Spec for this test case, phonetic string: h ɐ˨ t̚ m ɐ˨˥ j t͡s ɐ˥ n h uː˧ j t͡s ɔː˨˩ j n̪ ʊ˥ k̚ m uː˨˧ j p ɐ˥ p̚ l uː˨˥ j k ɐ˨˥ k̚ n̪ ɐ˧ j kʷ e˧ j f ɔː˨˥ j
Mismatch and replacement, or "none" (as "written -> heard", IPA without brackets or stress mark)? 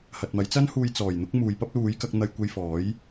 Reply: none